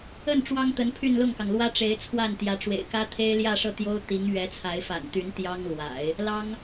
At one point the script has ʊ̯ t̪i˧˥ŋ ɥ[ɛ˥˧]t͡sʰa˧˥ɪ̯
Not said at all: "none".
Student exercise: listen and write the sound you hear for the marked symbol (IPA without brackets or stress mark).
ɛ˧˥